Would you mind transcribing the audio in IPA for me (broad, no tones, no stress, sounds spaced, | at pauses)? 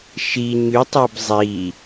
ʃ i ɲ y tˤ ɤ b zˤ i